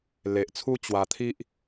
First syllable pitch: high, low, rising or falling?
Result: low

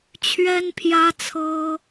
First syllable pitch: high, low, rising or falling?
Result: high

